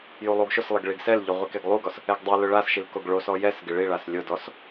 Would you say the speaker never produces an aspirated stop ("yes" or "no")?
yes